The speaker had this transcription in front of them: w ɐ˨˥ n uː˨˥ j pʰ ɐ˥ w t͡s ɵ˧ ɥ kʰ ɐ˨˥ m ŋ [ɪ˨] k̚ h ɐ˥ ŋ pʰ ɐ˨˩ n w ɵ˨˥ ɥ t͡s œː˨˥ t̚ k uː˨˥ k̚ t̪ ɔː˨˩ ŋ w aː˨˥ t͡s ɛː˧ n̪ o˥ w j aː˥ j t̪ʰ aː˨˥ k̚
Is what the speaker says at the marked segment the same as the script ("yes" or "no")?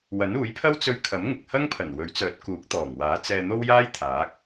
yes